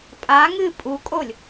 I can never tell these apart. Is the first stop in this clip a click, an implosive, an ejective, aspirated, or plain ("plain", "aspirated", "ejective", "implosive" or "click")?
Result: ejective